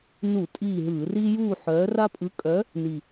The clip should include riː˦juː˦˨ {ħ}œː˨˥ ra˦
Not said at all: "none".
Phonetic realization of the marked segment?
ħ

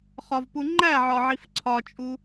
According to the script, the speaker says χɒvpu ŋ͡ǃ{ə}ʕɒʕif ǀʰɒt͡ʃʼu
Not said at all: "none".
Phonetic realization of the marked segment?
æ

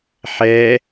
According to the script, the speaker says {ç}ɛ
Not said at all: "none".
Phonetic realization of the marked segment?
ħ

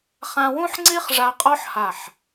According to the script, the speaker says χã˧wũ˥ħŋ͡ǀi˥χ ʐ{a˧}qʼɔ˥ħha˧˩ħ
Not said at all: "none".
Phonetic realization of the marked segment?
a˧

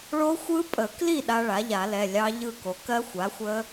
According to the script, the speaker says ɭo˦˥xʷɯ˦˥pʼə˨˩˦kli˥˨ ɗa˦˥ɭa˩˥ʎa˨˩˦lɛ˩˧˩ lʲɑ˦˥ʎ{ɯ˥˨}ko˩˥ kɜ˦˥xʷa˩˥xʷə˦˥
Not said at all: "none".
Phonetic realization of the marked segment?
ɯ˥˨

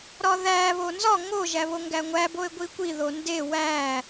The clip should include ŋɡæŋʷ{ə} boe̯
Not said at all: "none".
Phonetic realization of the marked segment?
æ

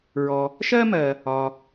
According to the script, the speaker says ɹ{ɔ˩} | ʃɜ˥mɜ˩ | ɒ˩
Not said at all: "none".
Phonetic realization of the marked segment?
ɔ˩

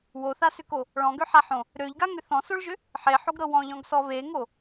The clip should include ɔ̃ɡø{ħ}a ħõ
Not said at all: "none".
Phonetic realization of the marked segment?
ħ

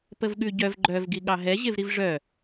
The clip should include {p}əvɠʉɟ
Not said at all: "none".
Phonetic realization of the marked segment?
p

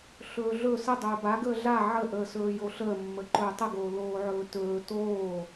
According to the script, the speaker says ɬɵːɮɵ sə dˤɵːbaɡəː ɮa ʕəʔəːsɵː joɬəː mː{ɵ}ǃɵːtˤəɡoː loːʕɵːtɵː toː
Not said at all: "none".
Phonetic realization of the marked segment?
ə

